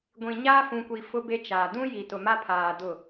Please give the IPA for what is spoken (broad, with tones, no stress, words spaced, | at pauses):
ɡʷĩ˨ ɲaː˦fũ˨kʷi˨ fʊ˦be˦t͡ʃaː˨ dũ˦ ji˨tʊ˨ma˦pʰaː˨ dʊ˦˨